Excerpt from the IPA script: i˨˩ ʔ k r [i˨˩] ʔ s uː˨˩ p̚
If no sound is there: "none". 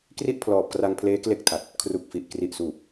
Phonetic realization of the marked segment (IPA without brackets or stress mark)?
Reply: i˨˩